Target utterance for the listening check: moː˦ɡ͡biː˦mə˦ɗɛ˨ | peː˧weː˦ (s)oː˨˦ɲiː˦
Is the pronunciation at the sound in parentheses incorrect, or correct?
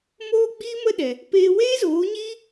incorrect